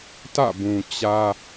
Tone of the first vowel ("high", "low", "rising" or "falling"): falling